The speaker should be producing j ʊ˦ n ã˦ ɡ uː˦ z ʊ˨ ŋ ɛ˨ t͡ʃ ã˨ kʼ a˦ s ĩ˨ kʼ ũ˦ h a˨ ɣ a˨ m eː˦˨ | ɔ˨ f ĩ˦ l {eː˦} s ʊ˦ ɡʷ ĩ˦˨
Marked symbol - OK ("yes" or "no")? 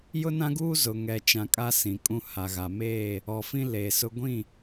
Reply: no